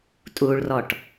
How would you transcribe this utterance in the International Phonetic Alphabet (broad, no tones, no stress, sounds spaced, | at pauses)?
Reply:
tʼ u ɭ r ɔ ʈ